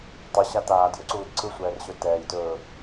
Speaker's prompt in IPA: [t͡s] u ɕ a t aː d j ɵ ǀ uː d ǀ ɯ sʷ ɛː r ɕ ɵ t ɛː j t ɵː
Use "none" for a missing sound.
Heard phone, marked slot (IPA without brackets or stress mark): tˤ